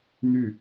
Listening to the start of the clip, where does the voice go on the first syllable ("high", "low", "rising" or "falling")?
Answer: falling